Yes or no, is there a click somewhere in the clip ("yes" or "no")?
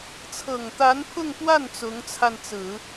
no